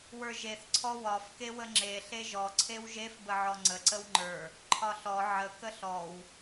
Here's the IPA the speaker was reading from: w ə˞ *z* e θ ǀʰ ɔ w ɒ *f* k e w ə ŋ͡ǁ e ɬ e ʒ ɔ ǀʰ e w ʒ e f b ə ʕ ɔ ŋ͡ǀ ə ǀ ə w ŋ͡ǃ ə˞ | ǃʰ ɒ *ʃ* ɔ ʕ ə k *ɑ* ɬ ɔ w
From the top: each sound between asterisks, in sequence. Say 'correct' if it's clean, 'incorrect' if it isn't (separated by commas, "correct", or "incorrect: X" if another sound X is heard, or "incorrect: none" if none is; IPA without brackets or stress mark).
incorrect: ʒ, correct, incorrect: ɬ, incorrect: ə